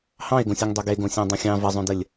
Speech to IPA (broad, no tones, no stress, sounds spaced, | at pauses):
h ɑ̃ e̯ ɡ õ sʲ o ŋ dˤ o ɡ e ɡ õ sʲ ɑ̃ dˤ õ xʲ ɑ̃ v ə zˤ õ d ə lʲ